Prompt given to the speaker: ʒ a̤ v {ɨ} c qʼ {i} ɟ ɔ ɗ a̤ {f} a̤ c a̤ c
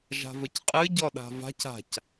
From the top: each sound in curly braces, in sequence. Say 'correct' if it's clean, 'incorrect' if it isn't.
incorrect, incorrect, incorrect

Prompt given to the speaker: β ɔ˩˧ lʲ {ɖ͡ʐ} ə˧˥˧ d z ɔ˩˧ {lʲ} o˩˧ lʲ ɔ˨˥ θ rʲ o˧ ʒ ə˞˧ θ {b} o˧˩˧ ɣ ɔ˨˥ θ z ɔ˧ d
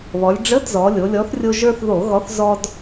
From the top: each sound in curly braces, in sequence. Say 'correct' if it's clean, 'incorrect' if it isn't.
correct, correct, incorrect

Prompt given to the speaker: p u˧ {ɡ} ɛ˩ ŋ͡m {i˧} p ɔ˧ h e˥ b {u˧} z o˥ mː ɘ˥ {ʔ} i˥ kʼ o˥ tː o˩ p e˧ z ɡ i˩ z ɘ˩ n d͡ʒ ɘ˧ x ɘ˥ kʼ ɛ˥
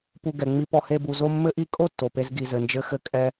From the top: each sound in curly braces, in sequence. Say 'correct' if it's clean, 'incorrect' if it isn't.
correct, correct, correct, correct

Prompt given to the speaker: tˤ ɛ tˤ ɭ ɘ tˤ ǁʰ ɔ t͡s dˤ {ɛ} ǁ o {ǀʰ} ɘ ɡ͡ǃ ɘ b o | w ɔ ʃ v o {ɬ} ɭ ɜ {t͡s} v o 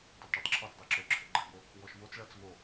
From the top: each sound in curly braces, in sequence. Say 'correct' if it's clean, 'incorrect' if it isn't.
correct, incorrect, incorrect, correct

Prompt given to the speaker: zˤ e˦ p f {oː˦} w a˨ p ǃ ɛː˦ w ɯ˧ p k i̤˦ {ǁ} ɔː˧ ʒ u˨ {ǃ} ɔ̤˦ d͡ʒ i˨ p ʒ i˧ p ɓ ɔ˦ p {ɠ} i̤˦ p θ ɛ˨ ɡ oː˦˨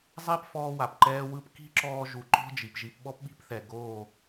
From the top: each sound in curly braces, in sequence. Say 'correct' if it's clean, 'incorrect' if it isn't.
incorrect, correct, correct, incorrect

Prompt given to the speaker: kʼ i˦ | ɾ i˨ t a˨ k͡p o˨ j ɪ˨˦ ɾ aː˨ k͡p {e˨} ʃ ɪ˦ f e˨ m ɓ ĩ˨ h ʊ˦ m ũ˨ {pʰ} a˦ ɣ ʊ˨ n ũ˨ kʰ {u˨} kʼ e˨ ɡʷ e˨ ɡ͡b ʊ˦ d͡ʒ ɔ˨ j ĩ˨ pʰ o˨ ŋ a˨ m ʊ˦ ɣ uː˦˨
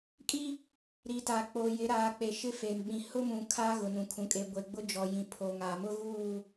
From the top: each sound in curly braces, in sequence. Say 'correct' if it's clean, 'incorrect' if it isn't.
correct, incorrect, incorrect

